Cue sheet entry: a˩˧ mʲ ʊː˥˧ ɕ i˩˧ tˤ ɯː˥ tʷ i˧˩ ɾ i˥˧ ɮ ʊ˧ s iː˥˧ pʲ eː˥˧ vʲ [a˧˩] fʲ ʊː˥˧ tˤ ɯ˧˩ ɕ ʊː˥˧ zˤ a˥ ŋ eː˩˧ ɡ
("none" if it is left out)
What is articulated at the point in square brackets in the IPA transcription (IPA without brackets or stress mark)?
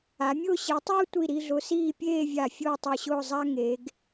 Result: a˧˩